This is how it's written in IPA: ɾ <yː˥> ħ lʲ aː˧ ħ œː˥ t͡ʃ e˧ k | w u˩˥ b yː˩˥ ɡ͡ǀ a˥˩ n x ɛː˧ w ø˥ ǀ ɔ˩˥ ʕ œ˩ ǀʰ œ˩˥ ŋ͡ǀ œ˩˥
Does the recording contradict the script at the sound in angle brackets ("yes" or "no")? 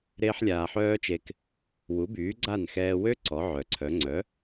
yes